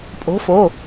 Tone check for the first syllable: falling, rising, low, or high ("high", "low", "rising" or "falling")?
rising